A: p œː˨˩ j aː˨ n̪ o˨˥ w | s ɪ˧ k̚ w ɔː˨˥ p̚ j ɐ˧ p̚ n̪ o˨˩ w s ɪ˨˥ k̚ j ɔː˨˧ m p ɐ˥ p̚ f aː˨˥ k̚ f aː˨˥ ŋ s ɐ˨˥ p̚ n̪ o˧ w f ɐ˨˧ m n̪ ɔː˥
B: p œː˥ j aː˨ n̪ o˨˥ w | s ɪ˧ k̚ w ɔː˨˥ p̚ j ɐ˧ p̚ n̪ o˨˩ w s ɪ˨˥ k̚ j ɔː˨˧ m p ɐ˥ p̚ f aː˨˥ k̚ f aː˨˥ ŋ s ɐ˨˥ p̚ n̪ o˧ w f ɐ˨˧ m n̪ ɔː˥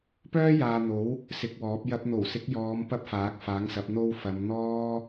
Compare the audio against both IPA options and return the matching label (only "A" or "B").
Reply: B